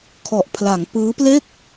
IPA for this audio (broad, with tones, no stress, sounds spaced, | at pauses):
kʰ ɔ˨˩ ʔ pʰ l a˩˦ ŋ p ɯː˦˥ p l e˥˩ k̚